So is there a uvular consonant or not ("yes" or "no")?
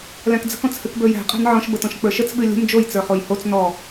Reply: yes